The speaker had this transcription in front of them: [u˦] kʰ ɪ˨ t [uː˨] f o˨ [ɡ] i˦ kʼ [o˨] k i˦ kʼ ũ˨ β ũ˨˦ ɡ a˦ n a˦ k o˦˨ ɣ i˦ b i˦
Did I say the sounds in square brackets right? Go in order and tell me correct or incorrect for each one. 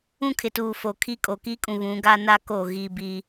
incorrect: ũ˦, correct, incorrect: kʰ, correct

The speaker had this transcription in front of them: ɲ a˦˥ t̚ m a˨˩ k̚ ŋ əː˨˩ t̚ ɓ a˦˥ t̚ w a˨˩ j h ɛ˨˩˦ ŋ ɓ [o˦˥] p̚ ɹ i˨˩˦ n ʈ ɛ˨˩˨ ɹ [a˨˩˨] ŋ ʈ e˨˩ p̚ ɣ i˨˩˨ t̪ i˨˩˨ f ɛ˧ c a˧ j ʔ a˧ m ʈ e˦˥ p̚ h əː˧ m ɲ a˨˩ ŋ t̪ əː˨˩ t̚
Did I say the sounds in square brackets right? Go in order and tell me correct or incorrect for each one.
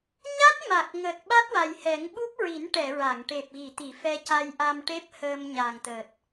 incorrect: u˦˥, correct

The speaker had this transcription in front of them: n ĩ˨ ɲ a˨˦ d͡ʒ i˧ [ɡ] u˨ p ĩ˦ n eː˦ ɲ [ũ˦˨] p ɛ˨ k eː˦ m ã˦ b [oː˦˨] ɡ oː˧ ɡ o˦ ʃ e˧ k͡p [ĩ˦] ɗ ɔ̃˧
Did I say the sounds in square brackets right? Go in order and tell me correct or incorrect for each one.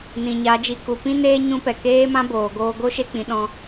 incorrect: k, incorrect: ũ˦, incorrect: oː˨, incorrect: ĩ˨

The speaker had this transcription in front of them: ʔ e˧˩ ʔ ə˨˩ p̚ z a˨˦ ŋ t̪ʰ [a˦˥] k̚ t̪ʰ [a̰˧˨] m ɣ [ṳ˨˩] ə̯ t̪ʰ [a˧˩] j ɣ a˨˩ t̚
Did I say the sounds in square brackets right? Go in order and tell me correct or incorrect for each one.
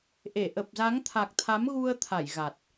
incorrect: a˨˩, incorrect: a˨˦, incorrect: u˧, correct

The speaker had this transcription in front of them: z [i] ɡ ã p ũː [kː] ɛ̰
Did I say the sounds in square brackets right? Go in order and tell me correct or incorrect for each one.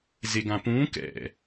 incorrect: e, incorrect: k

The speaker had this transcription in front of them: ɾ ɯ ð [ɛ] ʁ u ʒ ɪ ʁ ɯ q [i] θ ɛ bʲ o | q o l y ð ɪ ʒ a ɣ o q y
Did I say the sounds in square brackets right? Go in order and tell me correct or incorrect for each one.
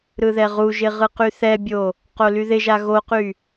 correct, incorrect: y

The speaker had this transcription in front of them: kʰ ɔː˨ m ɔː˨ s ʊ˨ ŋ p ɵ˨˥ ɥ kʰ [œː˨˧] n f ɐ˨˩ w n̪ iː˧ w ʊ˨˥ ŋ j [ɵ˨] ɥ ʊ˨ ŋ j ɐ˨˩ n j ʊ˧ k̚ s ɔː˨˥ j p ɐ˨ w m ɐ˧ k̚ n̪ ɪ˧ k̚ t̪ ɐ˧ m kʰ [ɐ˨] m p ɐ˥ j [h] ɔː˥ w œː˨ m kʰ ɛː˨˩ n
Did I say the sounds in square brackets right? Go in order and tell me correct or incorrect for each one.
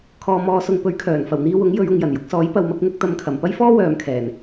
incorrect: œː˨˩, incorrect: ɵ˨˧, incorrect: ɐ˨˩, incorrect: f

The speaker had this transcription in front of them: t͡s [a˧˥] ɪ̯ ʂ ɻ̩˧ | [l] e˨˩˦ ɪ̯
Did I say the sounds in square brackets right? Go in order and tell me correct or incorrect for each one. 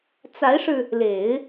correct, correct

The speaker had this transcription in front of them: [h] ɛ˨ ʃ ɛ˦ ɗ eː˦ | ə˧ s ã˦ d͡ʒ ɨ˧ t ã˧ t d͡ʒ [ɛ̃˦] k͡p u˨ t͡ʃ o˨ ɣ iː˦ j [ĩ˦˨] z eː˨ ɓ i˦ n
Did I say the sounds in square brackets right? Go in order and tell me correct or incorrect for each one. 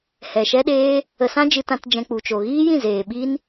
correct, incorrect: ɛ̃˧, correct

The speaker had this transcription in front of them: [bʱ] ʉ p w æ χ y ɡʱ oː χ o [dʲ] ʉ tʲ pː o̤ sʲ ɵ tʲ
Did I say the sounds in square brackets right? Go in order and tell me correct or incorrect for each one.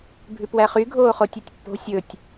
correct, incorrect: tʲ

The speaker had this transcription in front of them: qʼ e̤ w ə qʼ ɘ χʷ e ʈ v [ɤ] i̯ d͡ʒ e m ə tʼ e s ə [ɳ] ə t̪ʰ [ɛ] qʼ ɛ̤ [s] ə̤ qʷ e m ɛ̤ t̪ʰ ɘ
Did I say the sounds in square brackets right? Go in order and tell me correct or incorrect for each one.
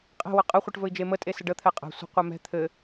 incorrect: ɵ, incorrect: ɖ, correct, incorrect: sʷ

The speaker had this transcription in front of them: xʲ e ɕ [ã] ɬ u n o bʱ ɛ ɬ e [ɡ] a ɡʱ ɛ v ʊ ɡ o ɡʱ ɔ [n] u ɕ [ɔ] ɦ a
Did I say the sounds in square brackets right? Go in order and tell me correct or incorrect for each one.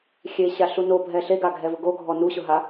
incorrect: a, correct, correct, incorrect: ʊ

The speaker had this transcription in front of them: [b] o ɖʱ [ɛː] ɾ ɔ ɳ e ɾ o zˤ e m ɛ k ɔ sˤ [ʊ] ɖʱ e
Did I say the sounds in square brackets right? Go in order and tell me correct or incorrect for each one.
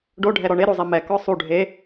incorrect: ɖ, incorrect: ɛ, incorrect: u

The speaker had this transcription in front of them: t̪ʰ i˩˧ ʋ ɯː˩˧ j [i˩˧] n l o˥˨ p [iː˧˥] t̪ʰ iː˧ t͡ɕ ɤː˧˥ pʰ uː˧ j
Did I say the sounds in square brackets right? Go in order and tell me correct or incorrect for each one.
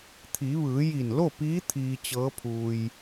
incorrect: i˧˩, correct

